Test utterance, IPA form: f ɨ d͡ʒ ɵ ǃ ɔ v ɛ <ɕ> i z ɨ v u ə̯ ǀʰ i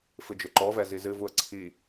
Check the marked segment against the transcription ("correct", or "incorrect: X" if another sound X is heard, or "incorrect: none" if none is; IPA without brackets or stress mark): incorrect: z